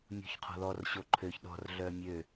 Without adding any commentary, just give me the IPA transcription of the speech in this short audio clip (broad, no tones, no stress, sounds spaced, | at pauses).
mʲ ṳ ç qʰ ɔ̤ ð ɔ r ɕ o ǃʰ ø ç ɗ ɔ̤ r ɮ œ mʲ ø